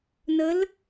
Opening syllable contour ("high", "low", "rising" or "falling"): rising